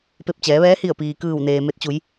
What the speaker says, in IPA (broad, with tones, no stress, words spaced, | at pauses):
pe˧˩p̚t͡ɕɛː˩˧ʋɛː˧˥ hi˧˩ə̯piː˩kɯː˧˩wneː˩ me˧t̚t͡ɕu˩˧j